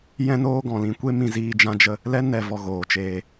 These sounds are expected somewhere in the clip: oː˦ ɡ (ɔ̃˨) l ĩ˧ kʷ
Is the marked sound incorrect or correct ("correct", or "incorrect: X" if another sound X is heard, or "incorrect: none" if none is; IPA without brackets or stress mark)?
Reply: correct